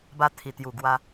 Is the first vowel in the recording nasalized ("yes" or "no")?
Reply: no